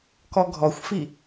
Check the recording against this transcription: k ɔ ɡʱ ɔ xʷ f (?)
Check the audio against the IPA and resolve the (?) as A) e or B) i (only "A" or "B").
B